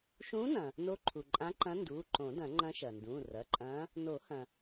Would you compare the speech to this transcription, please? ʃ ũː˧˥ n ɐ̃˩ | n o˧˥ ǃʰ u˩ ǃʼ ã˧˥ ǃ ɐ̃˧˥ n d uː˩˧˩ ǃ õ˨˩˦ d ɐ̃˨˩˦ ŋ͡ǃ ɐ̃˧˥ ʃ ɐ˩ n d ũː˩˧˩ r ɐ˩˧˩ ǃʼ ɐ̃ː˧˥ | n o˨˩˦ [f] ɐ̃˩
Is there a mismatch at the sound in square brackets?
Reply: yes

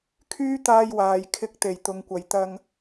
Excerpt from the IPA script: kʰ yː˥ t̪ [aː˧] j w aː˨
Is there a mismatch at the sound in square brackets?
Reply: no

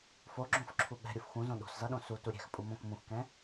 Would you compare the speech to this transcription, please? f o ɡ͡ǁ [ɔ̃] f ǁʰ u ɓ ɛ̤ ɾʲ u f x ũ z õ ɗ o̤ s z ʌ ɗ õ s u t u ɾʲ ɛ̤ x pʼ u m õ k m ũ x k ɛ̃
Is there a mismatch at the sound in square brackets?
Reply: yes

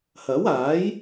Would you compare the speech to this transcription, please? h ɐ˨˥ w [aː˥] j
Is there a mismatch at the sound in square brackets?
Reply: yes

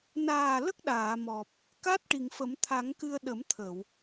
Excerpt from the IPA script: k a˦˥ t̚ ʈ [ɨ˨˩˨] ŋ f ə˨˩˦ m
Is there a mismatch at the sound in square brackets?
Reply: yes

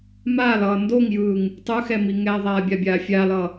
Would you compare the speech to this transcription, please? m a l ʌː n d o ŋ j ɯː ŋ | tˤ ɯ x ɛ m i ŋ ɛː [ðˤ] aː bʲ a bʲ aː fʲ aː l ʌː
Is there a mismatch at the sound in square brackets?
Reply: no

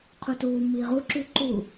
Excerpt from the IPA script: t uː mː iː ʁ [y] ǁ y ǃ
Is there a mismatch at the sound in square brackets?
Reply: yes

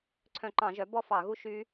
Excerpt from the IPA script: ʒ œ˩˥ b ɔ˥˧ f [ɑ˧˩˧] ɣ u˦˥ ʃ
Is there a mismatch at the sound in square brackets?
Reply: no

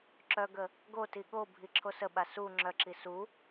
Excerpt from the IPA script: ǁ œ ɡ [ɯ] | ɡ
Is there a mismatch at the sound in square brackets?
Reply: yes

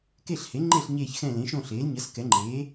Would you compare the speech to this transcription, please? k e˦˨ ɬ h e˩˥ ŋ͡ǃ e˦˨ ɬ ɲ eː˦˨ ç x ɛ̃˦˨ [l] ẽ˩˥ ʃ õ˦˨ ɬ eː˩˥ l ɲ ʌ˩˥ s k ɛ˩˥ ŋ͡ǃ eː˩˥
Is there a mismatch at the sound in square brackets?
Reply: no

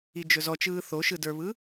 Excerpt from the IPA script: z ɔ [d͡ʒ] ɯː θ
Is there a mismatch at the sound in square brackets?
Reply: yes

